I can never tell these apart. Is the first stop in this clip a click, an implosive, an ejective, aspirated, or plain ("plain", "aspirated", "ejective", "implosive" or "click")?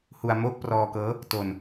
plain